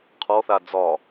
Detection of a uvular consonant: present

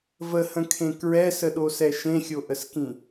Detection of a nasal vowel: present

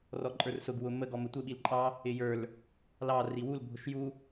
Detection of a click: present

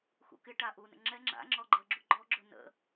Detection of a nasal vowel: absent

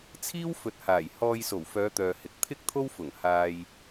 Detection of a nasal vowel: absent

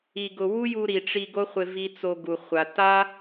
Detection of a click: absent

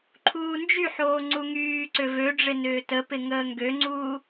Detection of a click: present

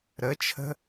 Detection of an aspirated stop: present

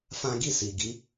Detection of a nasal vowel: present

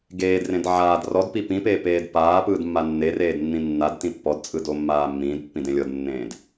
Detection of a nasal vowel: present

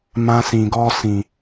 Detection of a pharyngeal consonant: absent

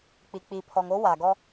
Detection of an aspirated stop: present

